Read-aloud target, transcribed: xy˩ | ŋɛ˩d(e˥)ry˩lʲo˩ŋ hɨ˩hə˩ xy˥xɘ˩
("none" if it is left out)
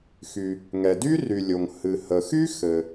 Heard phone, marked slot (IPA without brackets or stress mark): y˥